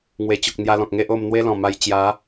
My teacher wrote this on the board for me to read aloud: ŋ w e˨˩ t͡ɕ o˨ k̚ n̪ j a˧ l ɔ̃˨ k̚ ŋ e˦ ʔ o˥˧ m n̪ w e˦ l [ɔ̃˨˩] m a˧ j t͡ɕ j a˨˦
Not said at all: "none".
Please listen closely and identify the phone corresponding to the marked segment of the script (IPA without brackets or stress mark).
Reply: ɔ̃˨˩